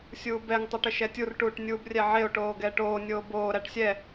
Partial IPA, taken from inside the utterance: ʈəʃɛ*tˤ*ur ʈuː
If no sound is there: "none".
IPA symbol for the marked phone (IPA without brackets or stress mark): tʲ